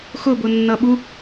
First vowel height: high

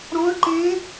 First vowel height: mid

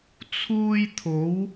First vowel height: high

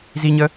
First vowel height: high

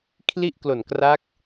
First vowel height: high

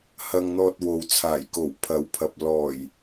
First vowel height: low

